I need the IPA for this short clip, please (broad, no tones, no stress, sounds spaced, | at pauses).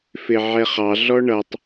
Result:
f ɪ ʕ ɛ χ ɑ ɮ ɔ ɳ ʌ tˤ